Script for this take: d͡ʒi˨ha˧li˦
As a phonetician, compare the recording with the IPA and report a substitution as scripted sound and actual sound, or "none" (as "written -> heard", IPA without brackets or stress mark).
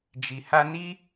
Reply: l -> n